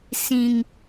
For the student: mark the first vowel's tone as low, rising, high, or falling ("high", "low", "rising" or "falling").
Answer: high